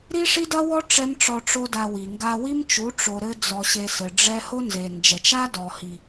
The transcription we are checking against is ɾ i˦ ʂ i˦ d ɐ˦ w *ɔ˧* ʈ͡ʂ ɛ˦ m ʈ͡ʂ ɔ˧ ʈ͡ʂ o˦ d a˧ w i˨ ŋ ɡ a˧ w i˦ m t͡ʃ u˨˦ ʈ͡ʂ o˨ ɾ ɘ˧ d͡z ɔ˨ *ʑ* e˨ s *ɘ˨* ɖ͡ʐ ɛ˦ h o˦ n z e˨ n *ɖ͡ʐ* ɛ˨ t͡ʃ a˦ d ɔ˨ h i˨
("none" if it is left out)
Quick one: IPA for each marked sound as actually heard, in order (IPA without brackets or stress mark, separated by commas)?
ɔ˦, ɕ, ɘ˨, d͡ʒ